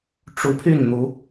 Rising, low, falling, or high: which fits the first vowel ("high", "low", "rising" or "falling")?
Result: rising